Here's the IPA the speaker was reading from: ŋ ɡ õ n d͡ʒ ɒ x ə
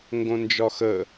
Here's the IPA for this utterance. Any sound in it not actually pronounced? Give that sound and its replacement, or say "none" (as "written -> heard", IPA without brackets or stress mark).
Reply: none